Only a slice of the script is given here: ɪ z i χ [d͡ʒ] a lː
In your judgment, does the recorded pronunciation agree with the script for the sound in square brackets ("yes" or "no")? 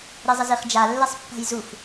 yes